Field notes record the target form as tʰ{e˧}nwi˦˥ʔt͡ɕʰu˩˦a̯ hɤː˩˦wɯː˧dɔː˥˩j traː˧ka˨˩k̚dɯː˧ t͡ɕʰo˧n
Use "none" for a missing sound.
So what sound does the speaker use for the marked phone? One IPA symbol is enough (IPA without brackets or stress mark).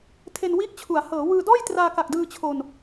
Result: e˧